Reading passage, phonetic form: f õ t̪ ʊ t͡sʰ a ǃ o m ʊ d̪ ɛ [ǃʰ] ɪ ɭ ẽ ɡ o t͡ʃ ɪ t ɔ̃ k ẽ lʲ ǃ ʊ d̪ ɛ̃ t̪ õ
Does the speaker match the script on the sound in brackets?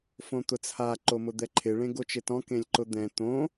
yes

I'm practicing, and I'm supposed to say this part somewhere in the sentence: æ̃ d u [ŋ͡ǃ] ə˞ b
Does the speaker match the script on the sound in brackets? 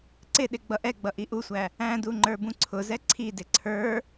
yes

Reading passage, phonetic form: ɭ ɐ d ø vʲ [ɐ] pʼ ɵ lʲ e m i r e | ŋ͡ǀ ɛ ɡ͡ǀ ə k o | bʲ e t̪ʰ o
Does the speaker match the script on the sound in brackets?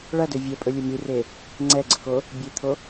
yes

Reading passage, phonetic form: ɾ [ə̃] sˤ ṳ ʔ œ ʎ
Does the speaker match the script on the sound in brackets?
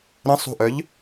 yes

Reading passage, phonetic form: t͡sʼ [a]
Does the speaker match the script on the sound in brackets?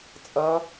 no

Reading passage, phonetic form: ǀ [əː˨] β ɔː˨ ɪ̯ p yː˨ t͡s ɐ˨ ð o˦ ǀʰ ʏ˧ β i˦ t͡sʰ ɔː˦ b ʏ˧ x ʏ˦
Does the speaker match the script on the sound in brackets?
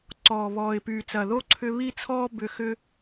no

